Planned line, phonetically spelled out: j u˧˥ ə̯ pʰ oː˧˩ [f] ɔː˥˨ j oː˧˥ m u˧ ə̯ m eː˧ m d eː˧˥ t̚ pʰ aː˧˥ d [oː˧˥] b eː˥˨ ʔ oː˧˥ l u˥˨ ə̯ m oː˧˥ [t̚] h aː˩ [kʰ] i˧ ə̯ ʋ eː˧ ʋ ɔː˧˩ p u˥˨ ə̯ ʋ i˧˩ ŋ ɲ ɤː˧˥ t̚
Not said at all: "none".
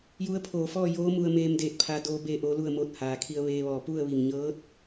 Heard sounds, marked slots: f, oː˧˥, t̚, kʰ

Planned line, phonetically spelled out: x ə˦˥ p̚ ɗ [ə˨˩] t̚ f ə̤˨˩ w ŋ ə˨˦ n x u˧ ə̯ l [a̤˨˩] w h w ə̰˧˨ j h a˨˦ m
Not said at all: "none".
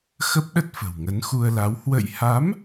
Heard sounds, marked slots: ə˦˥, a˨˦

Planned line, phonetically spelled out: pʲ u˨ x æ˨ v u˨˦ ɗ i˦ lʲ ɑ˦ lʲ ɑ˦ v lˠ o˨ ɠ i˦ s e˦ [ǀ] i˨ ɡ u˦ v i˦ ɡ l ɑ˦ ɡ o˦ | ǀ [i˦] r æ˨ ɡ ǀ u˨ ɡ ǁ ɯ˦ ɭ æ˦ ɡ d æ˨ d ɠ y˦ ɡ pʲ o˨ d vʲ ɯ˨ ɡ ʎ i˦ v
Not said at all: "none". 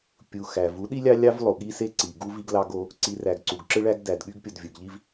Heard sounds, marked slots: ǀ, i˨

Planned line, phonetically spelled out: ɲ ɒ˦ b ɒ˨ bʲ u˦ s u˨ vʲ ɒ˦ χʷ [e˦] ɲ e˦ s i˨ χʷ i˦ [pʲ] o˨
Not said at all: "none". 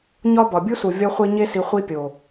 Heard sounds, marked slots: e˦, pʲ

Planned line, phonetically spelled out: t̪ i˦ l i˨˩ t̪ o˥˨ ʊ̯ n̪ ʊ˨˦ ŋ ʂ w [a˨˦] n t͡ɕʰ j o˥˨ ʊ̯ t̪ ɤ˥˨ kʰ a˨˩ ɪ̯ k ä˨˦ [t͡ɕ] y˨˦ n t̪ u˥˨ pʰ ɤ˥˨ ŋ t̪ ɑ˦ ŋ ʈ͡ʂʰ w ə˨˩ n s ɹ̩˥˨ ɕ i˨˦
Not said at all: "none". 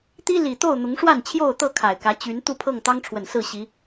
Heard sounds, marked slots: a˥˨, t͡ɕ

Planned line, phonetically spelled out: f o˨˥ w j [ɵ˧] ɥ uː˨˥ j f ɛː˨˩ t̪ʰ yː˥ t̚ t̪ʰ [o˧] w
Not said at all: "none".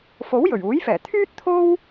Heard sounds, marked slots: ɵ˨˩, o˥

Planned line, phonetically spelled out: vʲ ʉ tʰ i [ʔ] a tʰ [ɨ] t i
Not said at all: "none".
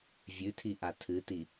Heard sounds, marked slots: ʔ, ɨ

